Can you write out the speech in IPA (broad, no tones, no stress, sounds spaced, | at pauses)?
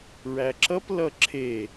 ɹ æ ǁ ʌ p l ʌ ǁʰ e